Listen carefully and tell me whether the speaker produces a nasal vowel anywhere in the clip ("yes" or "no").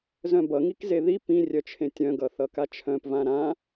yes